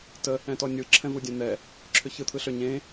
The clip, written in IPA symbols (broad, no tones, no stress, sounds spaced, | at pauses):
t ə | ɛ̃ t ɔ nʲ ɯ ǁʰ ɛ̃ v u dʲ ɛ̃ n̪ ɛ | ǁʰ ʏ ç ɯ t̪ʰ ɯ ɬ ʏ ɲ ẽ